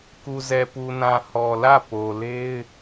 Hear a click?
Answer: no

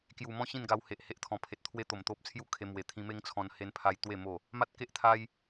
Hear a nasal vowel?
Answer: yes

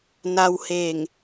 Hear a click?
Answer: no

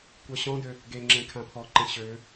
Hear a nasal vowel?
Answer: yes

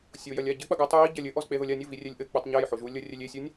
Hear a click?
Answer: no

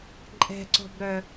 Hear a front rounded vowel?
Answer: yes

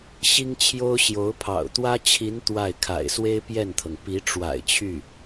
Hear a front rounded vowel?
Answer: yes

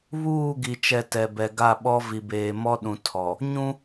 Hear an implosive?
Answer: yes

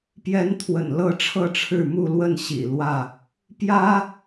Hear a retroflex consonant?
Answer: yes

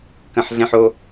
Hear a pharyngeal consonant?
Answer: yes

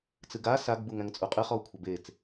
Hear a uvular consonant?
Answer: yes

